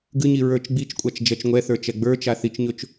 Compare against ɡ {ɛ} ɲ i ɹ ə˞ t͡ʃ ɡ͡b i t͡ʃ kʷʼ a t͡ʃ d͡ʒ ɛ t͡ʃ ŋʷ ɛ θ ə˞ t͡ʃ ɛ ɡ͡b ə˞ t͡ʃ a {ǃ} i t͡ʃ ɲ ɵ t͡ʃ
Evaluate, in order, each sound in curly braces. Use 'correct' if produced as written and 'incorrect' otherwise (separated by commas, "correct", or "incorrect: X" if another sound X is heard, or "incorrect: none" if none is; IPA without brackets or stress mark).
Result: incorrect: ɨ, incorrect: θ